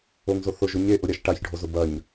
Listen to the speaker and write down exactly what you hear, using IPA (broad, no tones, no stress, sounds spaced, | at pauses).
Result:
o ŋ z o θ ʊ ʒ ʊ ɲ e ʔ ʊ ɾʲ a ʃ ʈ a ç ɖʱ o z ʊ b ɐ ɲ